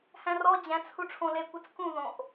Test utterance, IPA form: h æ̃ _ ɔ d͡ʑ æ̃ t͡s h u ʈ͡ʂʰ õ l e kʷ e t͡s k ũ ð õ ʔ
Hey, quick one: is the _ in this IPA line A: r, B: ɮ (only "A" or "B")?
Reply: A